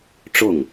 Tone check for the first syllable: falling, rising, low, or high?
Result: falling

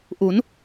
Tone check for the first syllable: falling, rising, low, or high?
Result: rising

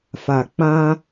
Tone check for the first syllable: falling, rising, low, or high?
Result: low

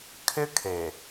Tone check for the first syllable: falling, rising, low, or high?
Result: high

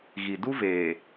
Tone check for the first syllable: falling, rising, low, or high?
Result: low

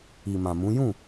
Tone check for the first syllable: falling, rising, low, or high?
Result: low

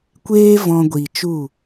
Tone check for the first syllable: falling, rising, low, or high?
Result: high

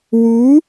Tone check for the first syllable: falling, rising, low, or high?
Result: rising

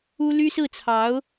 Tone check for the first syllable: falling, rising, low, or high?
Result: high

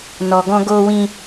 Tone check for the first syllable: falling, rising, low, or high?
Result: low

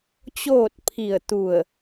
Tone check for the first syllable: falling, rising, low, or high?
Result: falling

